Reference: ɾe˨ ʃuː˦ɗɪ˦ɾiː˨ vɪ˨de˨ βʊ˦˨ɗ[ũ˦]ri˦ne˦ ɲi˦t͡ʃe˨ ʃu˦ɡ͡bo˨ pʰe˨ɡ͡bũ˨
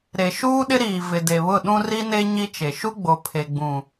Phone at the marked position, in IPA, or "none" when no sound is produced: ũ˦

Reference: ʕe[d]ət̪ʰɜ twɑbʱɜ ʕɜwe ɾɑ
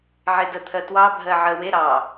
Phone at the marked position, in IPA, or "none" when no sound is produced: d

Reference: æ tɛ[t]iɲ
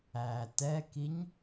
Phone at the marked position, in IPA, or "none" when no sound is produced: k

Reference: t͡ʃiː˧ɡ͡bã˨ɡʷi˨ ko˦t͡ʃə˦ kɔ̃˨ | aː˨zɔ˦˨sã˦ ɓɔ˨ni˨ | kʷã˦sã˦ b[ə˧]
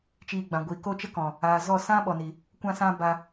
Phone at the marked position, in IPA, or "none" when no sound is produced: a˧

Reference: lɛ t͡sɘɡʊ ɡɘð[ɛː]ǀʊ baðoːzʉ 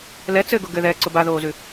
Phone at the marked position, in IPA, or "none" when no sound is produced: ɛː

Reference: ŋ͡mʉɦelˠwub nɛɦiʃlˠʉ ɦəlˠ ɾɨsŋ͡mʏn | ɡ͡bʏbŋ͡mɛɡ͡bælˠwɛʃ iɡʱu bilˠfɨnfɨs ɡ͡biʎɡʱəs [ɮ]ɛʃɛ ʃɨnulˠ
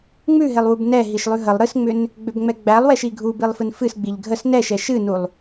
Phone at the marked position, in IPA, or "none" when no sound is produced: n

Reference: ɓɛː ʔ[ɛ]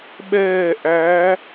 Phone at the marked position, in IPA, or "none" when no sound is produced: æ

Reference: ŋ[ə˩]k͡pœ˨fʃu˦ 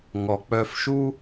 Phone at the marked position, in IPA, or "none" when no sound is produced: ɔ˩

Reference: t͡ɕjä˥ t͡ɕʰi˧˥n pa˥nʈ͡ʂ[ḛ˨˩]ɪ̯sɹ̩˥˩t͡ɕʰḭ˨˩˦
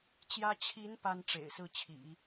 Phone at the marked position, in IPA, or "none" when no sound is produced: ḛ˨˩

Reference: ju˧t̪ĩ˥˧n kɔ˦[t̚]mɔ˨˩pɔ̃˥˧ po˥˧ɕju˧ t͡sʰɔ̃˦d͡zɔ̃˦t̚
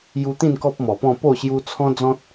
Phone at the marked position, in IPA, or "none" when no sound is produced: p̚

